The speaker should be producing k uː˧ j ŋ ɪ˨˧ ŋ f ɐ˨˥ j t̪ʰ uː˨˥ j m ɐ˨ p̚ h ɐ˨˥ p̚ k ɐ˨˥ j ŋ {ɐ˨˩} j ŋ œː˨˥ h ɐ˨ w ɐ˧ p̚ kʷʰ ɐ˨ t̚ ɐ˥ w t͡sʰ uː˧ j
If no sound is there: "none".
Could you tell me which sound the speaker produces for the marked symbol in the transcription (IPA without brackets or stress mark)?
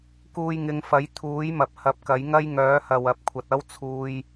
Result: ɐ˥